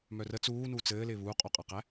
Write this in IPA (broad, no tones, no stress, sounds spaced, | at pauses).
m œ r ə t͡s uː n uː t͡s ɘː l ɪː β uː qʼ o qʼ a q æ